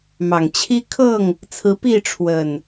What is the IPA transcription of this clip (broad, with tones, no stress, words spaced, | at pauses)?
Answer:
mɑ˨˩ŋt͡ɕʰi˦kʰɤ˥˨ŋ | t͡sʰɹ̩˨˦pi˥˨ ʈ͡ʂʰwə˨˩n